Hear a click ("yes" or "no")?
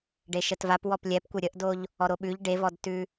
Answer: no